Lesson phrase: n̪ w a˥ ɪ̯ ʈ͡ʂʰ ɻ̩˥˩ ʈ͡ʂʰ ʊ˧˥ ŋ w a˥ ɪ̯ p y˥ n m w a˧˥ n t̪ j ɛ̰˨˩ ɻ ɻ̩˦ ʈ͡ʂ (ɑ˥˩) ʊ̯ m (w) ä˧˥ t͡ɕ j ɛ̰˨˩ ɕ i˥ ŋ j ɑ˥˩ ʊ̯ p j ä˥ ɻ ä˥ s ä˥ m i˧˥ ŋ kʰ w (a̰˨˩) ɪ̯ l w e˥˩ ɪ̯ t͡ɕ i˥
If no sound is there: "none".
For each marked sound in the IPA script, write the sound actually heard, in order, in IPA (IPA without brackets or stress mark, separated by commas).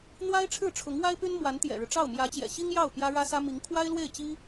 ɑ˥˩, j, a˥